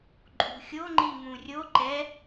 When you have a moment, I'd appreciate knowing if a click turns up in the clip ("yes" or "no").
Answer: yes